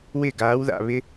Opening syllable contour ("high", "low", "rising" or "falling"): falling